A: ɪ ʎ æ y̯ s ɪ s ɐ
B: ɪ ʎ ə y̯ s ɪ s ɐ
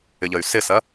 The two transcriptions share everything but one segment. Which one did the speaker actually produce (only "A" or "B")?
B